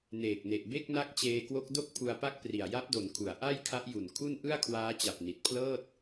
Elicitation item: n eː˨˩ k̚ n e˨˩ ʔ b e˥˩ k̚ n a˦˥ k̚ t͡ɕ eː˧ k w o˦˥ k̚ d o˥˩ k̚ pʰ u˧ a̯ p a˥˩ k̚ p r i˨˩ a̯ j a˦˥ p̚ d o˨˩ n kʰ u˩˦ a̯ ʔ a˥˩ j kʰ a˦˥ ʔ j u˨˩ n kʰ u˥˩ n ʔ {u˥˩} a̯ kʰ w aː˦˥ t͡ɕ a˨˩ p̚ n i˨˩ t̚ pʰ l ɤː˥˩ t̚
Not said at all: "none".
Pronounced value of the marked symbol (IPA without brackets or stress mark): ɯ˥˩